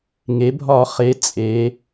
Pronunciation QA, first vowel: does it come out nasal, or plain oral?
oral